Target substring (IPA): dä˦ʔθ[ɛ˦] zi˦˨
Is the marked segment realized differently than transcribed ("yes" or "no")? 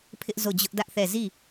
yes